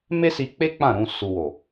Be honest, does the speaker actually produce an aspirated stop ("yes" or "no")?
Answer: no